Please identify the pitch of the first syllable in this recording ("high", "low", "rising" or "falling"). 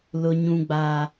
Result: high